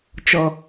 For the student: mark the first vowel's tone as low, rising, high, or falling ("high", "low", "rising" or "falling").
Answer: low